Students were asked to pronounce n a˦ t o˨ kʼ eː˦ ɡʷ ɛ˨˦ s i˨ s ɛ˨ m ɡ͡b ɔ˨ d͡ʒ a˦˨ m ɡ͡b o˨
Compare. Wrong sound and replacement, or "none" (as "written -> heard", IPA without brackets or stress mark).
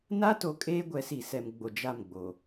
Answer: ɔ˨ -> o˨